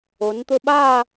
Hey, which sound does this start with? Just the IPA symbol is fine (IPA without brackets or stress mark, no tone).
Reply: o